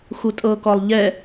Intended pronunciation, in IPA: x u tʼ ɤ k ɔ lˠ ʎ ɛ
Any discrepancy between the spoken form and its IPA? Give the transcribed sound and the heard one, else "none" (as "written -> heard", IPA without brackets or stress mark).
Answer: none